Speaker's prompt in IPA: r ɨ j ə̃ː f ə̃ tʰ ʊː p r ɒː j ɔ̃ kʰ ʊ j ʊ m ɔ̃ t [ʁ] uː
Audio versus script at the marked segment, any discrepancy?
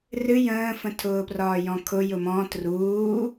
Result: yes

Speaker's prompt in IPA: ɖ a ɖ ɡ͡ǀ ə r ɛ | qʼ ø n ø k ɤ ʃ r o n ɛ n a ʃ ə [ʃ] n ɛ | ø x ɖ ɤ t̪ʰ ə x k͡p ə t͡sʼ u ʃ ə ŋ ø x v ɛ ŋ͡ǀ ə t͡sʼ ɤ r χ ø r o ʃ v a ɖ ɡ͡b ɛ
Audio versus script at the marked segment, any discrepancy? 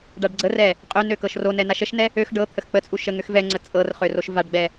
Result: no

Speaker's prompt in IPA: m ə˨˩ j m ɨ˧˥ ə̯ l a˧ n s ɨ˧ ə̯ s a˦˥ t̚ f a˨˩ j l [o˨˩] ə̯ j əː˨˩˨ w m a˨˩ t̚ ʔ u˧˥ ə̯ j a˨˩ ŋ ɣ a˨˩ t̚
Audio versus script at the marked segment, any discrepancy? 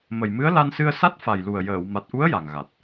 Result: yes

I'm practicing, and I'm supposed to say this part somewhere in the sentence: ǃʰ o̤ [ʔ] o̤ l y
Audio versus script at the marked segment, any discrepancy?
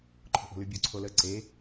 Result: no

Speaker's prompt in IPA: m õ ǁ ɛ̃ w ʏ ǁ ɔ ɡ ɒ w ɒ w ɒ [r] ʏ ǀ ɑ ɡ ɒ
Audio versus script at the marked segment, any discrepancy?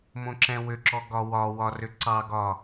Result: no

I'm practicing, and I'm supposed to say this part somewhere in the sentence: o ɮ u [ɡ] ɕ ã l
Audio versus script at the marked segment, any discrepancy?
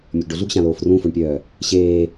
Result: no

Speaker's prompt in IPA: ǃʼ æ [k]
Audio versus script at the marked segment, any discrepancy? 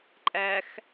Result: yes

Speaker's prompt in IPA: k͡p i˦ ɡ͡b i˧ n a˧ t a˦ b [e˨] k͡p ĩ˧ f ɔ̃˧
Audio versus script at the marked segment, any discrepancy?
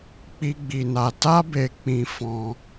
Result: yes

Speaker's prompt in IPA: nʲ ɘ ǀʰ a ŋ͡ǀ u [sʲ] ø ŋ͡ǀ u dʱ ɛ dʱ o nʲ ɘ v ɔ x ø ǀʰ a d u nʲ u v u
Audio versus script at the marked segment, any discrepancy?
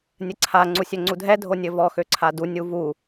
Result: no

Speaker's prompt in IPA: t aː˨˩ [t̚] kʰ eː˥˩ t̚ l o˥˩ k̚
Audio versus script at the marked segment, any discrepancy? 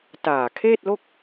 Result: yes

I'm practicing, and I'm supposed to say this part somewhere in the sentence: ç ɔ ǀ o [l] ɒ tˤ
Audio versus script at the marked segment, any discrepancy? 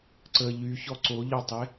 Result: yes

